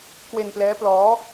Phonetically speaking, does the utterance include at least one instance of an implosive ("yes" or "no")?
no